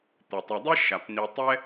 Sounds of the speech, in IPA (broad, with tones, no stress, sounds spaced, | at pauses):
t̪ ɘ˩ tˤ ɛ˨ dˤ i˥ ʃ a˩ p n̪ i˨ tˤ ɛ˦